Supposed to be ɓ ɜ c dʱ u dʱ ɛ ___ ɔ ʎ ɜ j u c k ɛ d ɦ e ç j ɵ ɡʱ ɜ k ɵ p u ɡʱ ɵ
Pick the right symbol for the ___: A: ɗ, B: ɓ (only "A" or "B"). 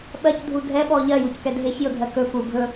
B